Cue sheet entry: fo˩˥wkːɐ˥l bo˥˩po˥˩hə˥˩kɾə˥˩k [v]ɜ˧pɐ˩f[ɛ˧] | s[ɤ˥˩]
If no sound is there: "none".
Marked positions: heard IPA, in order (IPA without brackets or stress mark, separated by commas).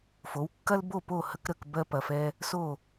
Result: b, ɛ˧, o˥˩